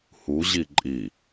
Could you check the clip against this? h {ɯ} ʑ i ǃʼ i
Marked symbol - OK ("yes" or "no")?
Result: no